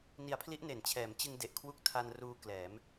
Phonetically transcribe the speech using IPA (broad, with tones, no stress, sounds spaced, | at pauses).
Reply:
n i˩˦ a̯ pʰ l i˦˥ ʔ n e˨˩ n t͡ɕʰ ɛː˩˦ m t͡ɕ ɯ˧ ŋ d e˨˩ ʔ kʰ w u˦˥ k̚ tʰ a˧ n r uː˧ k l ɛː˩˦ m